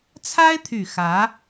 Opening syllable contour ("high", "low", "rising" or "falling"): high